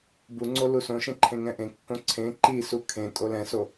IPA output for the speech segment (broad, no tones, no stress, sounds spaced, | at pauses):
b u ŋ͡ǀ o l u s õ ʃ ẽ ǃʰ ẽ ŋ ɛ̃ ʔ ẽ kː õ ǀʰ ẽ ǃ i s u kʰ ẽ tʼ o l ɛ̃ s o